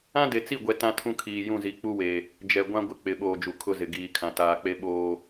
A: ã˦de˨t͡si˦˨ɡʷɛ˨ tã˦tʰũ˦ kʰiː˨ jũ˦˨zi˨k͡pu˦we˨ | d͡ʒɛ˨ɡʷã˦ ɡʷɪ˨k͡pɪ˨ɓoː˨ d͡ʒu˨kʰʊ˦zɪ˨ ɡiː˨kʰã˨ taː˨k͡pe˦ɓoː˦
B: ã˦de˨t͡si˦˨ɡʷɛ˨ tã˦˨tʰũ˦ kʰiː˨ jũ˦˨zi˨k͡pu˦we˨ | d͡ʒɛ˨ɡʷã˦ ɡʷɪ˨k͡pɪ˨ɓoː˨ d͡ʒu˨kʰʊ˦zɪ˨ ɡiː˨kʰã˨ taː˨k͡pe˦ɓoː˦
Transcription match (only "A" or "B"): A